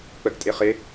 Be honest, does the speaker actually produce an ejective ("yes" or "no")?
yes